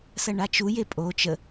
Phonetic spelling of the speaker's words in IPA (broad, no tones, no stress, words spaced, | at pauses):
sɐɳat͡ʃuje pʼo t͡ʃə